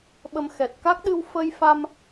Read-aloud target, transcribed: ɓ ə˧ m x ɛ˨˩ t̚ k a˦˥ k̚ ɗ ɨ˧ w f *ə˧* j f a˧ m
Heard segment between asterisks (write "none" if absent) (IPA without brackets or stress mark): ə˧